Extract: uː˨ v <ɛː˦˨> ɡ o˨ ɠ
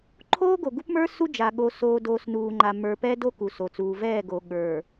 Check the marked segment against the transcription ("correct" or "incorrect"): correct